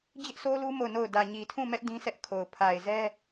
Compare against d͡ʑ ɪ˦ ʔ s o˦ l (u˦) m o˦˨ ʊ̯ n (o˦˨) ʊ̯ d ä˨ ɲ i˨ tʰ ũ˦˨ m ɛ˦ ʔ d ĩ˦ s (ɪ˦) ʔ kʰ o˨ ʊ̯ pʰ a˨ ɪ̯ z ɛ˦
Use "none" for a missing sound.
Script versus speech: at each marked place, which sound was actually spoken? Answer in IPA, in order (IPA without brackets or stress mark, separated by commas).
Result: u˦, o˦˨, ɛ˦